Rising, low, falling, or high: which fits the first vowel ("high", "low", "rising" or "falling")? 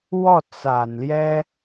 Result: falling